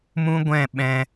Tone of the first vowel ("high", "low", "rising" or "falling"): high